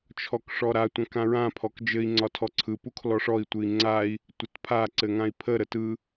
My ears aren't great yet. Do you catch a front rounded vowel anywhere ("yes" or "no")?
no